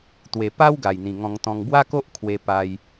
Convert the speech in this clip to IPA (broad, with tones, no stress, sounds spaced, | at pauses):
t̪ w e˨˩ p a˦ w ɡ a˨˩ j n̪ ĩ˨˩ ŋ ɔ̃˧ ŋ t̪ ɔ̃˧ ŋ b w a˦ k o˦ ʔ kʰ w e˧ p a˧ j